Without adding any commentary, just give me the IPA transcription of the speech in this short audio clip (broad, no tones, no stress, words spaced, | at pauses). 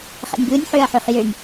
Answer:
χɛ̰nʲbɯnʲ ħøɐ̯ħøχjønʲ